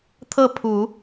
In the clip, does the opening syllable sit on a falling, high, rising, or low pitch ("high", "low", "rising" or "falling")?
falling